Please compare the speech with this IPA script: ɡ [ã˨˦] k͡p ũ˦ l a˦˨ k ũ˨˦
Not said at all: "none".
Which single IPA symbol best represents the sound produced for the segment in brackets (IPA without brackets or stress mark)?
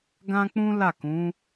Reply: ã˦